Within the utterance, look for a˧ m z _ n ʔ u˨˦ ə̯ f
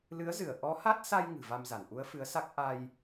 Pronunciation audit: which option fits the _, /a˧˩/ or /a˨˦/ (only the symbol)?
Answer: a˧˩